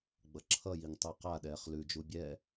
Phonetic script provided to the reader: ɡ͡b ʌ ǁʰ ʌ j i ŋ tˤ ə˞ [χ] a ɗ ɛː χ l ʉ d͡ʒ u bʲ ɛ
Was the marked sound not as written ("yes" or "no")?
yes